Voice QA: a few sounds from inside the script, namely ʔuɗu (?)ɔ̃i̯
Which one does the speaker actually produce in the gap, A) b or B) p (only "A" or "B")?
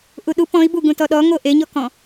B